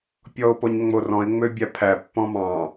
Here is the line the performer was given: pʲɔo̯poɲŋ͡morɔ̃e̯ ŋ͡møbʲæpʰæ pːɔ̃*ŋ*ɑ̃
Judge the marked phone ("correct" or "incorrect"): incorrect